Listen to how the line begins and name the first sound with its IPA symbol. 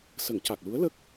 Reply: s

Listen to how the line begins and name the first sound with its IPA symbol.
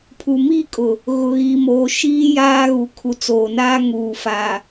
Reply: pʰ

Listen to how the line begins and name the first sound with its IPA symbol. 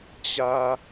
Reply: t͡ɕ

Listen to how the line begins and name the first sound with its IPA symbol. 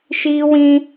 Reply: ʃ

